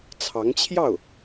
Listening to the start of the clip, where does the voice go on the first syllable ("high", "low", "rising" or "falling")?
rising